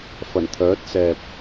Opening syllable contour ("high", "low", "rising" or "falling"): low